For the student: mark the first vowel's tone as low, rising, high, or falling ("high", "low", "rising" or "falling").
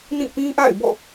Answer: falling